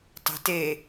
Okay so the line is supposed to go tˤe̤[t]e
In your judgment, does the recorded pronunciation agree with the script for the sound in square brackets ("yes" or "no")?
yes